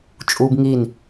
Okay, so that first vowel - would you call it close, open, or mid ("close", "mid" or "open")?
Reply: close